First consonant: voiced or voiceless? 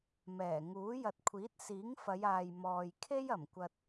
voiced